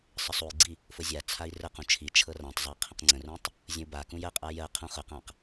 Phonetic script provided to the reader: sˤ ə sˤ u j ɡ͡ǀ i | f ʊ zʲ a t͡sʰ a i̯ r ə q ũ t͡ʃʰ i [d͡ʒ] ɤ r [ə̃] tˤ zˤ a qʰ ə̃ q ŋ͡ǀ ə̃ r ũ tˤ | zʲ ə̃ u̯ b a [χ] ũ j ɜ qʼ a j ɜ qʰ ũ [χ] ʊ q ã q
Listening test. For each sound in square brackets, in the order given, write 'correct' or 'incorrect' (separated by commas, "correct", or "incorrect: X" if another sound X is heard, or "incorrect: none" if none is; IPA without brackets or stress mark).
incorrect: t͡ʃʰ, incorrect: ã, incorrect: k, correct